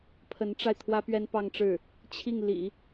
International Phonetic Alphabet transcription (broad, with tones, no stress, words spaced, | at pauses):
pʰə˧˥nʈ͡ʂa˧ɪ̯ t̪ʰwä˥pɥɛ˥npɑ˥˧ŋʈ͡ʂɻ̩˥˩ | t͡ɕʰi˥˩ŋlḭ˨˩˦